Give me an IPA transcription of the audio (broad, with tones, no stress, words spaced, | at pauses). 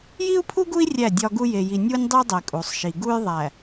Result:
ji˦u̯pʰu˦ɡu˦i̯ rʲæ˦˨dʲɒ˦ɡu˦ je˨ji˨ nʲu˦nʲdˤi˦dˤe˨ kʼu˨sˤʃi˨ ɡu˦j ðˤæ˨